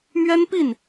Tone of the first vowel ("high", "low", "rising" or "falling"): high